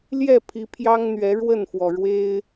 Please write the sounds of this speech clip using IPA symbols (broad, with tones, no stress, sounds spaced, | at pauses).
l j ɛ˥˨ pʰ i˨˦ pʰ j ɑ˦ ŋ n̪ ɥ ɛ˨˦ ɻ w ə˥˨ n f w ɔ˩ ɻ w e˦ ɪ̯